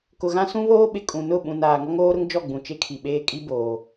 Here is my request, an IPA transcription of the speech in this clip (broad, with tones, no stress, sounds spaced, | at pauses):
k ʊ˨ ɣ ã˦ s ũ˦ β oː˦ ɓ ɪ˨ kʼ ũ˨ n ʊ˦˨ ɓ ũ˨ n aː˨ ŋ ɔ˦ ŋ oː˦ ɾ ʊ˦ ŋ d͡ʒ ɔ˦˨ ɡ͡b ũ˨ t͡ʃ e˦ kʰ i˨ ɓ eː˦ kʼ i˦ b oː˨